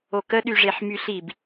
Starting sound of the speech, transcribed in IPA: o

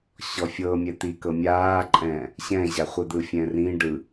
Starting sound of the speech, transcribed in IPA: ɕ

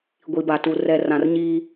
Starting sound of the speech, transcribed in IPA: ɡʷ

